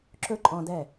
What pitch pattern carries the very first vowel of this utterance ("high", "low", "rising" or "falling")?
high